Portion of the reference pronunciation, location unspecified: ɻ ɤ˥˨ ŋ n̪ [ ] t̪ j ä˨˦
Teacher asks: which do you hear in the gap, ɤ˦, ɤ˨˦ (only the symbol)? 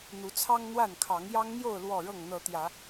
ɤ˨˦